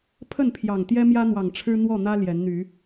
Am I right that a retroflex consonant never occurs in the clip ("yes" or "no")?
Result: no